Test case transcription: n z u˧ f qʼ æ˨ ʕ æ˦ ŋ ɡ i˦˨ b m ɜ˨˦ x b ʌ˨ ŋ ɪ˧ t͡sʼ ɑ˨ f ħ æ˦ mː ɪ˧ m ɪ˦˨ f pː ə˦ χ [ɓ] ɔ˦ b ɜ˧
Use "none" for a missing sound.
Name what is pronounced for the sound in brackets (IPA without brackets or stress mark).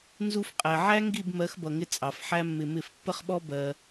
ɓ